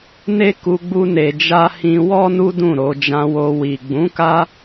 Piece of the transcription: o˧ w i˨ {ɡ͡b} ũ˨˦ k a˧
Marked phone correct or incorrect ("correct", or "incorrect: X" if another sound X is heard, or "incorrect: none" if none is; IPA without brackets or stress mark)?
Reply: correct